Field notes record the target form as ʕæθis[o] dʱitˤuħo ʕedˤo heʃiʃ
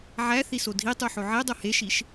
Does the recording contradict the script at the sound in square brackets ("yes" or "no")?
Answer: no